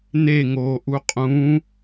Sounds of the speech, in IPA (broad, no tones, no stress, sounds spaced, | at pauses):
n e ŋ oː ʔ u qʼ ũ